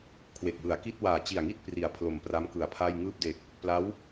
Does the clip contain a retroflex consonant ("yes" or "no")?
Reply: no